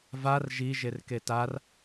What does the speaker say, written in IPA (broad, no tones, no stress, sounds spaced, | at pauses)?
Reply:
v a r ʒ i ʒ e r k e t a r